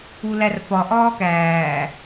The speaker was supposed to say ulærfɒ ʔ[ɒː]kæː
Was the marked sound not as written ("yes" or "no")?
no